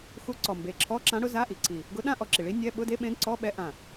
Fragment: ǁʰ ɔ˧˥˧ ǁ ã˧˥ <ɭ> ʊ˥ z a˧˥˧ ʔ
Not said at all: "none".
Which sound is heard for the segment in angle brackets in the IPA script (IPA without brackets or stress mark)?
ɽ